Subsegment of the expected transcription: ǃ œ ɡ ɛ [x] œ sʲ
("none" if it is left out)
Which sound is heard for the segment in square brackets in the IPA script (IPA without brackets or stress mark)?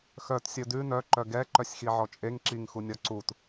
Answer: ǃ